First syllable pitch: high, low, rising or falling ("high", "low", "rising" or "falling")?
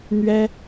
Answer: high